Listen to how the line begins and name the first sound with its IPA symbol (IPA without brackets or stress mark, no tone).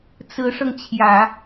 t͡s